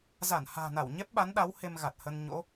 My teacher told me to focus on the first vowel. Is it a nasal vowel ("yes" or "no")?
no